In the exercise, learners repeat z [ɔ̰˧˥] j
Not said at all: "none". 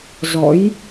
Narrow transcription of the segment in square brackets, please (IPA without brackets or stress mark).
ɔ̰˧˥